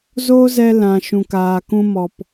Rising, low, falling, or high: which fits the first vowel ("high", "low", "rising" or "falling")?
high